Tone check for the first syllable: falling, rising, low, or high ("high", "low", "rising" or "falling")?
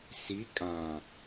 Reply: rising